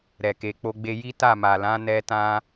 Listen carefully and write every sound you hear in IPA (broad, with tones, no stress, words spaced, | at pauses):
ɾɛ˨ke˨ k͡po˧ɡ͡be˧ ji˦ta˦˨ ma˨lã˨˦nɛ˧ tã˧